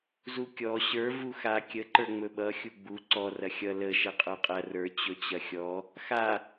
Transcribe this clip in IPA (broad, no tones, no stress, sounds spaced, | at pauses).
z u kʲ ɔ ɕ ə˞ v u x a kʲ ə ǃ ə˞ ŋ͡m ɵ ɓ ʌ xʲ u ɡ͡b u ǀ ɔ r ɐ xʲ ʌ l ə ʃ ɐ qʼ ə˞ qʼ ɐ r ə˞ t͡ɕ ɵ t͡ɕ ɐ xʲ ɔ | x a